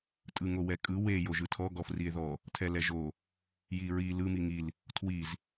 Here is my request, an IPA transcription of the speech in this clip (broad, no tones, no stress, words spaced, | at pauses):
tʼɯŋowɛkʼɯ we joʒɯtʰɔ ɡɔfrie̯ðɔ | tʰɛlɛʒo | jiɹi lɯ miŋil | tʰwiz